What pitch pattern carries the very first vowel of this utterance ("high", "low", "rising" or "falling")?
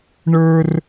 high